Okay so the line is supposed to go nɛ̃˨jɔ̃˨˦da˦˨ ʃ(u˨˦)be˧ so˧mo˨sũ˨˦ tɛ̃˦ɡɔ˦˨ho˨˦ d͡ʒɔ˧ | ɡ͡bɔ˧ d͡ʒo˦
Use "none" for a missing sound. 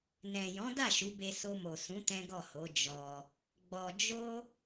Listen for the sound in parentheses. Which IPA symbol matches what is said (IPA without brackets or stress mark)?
u˨˦